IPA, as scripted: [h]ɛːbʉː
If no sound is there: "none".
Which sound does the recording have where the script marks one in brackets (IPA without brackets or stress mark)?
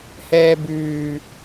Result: h